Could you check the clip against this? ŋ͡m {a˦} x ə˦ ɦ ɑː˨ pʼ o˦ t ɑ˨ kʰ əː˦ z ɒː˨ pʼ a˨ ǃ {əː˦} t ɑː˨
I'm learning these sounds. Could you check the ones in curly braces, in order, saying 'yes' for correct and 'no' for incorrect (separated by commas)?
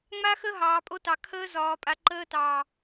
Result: yes, yes